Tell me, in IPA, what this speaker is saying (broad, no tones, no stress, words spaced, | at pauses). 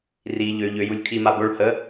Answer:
ri ʎø ʎøjulʲ kʰima boɭ hə